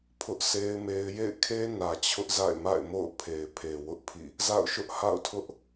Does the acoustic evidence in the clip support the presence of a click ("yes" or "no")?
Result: no